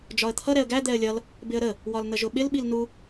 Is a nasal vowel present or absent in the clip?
absent